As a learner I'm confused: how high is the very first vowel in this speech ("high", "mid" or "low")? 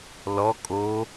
mid